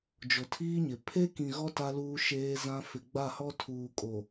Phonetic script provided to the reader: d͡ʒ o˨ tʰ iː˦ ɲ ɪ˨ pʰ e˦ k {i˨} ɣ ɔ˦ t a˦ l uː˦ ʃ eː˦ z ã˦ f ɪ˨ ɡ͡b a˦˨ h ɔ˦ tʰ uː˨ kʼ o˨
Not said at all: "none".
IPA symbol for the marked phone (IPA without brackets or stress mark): ĩ˨